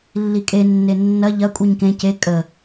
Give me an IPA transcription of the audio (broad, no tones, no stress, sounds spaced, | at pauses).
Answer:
lː i kʼ e nː e nː ɐ ʎ ɐ kʷʼ i ɲ k ẽ c e kʼ ə